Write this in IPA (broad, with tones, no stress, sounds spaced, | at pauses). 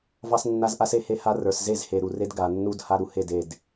v ɑ˦ s nː a˦ z ʔ a˦ s e˦ h e˦ h a˦ r ə˞˨ s z e˦˨ z h e˨ ɾ u˨ r e˦ d ɡ a˨ nː u˦ d h a˦ ɾ u˨ h e˦˨ d e˦˨ d